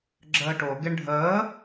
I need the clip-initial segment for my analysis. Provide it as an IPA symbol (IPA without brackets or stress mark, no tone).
ɡ͡ǁ